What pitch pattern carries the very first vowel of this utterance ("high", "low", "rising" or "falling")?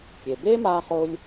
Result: low